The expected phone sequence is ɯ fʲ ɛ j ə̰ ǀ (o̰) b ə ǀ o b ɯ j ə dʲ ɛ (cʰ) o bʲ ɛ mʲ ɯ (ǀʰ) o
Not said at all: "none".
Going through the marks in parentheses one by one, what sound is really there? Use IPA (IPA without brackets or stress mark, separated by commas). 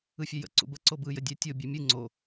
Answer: ṵ, tʲ, ŋ͡ǀ